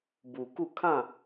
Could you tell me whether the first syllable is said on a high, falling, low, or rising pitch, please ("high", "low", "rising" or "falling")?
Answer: low